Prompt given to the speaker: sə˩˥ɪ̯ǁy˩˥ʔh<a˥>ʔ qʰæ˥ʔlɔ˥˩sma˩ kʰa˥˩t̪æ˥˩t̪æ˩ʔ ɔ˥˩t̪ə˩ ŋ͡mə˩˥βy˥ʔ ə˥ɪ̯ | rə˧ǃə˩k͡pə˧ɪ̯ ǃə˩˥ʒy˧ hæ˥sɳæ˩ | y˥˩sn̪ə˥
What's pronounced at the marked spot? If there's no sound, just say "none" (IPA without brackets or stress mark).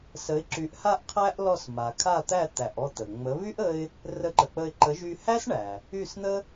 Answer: a˥